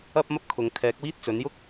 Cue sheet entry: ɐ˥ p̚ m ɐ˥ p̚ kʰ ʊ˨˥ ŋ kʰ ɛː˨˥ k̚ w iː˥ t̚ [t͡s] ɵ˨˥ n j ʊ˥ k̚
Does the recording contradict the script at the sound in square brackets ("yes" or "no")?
no